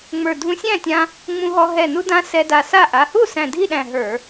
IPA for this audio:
ŋ͡mə˞˧˩dʱũ˧sʲæ̃˥˩tʲã˧ | ŋ͡mũ˧ɦɔ˧ ɦɛ˧˩nu˧dã˧ sɛ˧da˧˩sa˥˩ ʔa˩˧˩hu˥˩ sæ̃˧˩dʱi˥˩ɗæ̃˧˩ ɦə˞˧˩˧

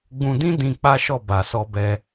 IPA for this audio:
ɡ͡bũ˧dĩ˦ dĩ˧ k͡pa˦ʃɔ˦˨ ba˨sɔ˧bɛ˧

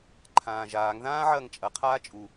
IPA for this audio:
ǃʰãːʒaːŋðãː ʕɐːŋt͡ʃʼɐqʰaː t͡ʃʼu

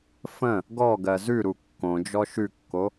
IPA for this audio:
fə̃ | ɡɔ ɡɜzʉɾu kːõd͡ʒɔ ʃʉkːo

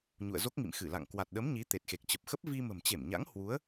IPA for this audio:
ɲṵ˧˨ə̯zo˦˥k̚ŋḭ˧˨m xɨ˧˩la̰˧˨ŋ kwa˨˩t̚ɗə˨˦m ɲi˨˦ t̪e˨˩t̚xe˨˩k̚t͡ɕə˨˩p̚xə˦˥p̚ vi˧mə̤˨˩mt͡ɕe˧˩mɲa̰˧˥ŋ hwu˨˦ə̯

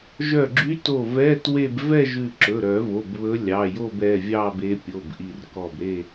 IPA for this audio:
ʒœ˧˩ɡ͡ǁy˧˥to˧˩ vɛ˧˥˧ twe˥˧b vɛ˥˧ʒʉ˧˩ ǁɵ˩˧˩ɾœ˨˩˦vo˩˧˩b βɵ˧˥lʲɑ˩˧˩jo˥˧bɛ˩˧˩ vʲɑ˥˧be˧˥ pʲo˩˧˩bʔi˧˩r kɔ˧˩bɾe˥˧

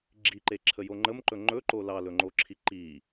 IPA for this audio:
ɡ͡ǁiǃeǁʰəjo ŋ͡ǃəmǃɵ ŋ͡ǃɵǃo lɑlɵŋ͡ǃoǁʰi ǃi

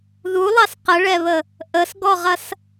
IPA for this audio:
ðulˠɑs qəɭɛβə | ʔəsɡɔʁɐs

